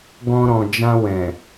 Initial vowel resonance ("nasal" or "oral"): nasal